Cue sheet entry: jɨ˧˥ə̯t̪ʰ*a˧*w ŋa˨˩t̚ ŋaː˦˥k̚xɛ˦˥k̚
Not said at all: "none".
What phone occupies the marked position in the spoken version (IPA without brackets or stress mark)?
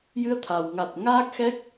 a˨˩